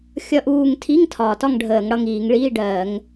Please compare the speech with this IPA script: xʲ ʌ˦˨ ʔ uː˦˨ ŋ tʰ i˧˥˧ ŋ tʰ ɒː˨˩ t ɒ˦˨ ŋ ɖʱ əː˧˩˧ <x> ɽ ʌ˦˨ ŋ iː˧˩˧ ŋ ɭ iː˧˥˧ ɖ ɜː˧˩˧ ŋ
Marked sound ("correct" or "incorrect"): incorrect